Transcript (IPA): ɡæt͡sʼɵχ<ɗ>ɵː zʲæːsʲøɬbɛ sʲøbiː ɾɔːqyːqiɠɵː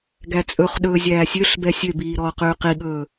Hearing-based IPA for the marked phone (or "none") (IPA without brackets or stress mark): ɗ